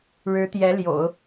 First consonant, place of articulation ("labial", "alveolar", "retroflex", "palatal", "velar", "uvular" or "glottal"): retroflex